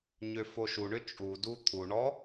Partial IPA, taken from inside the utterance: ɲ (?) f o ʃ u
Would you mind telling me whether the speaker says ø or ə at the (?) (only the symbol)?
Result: ø